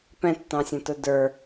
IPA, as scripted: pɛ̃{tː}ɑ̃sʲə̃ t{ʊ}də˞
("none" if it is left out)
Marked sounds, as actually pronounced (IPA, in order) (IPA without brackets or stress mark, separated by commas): tː, ʊ